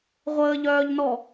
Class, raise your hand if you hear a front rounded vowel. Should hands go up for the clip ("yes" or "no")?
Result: yes